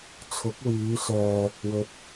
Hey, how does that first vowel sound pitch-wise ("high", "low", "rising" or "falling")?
rising